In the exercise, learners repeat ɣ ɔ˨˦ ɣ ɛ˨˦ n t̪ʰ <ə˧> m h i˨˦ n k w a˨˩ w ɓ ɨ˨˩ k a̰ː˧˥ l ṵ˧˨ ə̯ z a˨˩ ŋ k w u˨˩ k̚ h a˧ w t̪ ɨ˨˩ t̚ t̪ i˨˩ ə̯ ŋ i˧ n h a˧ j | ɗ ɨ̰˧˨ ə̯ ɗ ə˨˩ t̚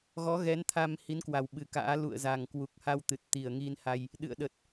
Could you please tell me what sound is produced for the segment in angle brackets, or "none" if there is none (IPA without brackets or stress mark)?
a˧